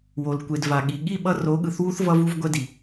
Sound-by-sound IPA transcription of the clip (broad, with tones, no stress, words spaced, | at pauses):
wo˨lkʷe˨d va˨ɠi˨ ɠi˦˨ɓʌ˧ ro˨˦ɠɯ˨θwu˦θ vʌ˧vu˧vɡʷɛ˧di˨